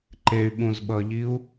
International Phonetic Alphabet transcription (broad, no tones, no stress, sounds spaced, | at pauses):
ǃ e y̯ ɓ ũ z ɓ ʌ ʎ i u̯